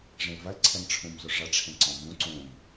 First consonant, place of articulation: retroflex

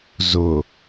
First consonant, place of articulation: alveolar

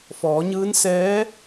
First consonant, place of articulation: labial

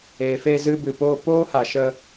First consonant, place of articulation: labial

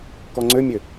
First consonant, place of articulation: velar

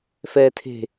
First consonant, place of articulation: labial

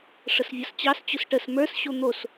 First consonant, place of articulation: retroflex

